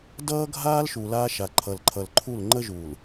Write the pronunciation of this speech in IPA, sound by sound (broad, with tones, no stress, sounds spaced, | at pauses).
d ʌː˦ ɡʱ aː˦ l ʃ u˨ l aː˦ ʃ a˨ ǃʰ ʌ˨ l ǃʰ ʌ˨ l ǃʰ u˦˨ l ŋ͡ǃ ə˦ ʒ uː˨ l